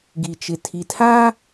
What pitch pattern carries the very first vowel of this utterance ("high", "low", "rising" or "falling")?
low